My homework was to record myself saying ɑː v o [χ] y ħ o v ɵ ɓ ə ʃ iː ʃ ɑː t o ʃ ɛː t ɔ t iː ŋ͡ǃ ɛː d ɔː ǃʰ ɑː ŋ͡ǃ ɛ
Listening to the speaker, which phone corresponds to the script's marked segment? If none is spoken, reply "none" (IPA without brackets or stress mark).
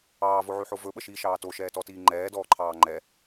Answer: ʕ